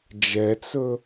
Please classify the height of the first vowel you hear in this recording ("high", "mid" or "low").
mid